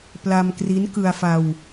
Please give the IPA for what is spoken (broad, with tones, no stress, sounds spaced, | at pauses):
p l a˧ m k r i˦˥ n k ɯ˧ a̯ f a˧ w